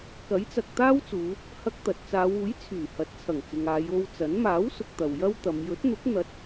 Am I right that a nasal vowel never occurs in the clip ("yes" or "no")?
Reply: yes